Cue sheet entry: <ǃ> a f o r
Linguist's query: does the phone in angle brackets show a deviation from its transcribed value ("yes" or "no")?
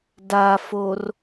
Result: yes